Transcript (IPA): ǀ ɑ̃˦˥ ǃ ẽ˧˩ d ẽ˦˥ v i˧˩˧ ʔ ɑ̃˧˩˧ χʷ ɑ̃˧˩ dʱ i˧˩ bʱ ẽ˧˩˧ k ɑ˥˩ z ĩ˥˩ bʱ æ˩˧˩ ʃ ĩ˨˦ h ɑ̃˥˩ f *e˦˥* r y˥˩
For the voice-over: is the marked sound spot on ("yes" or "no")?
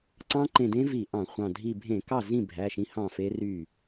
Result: yes